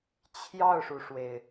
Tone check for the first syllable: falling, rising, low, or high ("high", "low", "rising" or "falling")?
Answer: falling